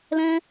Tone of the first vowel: high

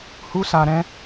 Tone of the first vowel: high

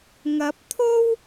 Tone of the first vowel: rising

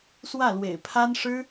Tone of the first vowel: falling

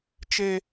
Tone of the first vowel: high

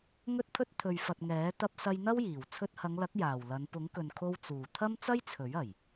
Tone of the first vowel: high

